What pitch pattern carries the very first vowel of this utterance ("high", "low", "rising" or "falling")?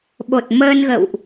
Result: low